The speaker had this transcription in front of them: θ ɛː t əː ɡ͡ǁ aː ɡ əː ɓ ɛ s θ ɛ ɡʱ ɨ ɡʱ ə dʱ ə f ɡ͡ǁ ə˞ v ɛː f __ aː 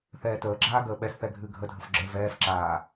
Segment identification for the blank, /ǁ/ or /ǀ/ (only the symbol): ǁ